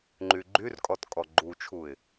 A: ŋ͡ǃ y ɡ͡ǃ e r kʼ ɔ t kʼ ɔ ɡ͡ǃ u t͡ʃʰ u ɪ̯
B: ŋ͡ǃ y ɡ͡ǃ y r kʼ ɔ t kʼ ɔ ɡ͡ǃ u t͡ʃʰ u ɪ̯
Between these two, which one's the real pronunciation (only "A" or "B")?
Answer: B